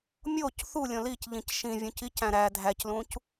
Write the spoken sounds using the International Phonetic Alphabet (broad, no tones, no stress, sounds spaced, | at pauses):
mʲ o c θ u lʲ õ l i c ʎ ĩ c ʃ ĩ vʲ ũ c i c æ̃ ɾ æ dʱ æ c l ũ c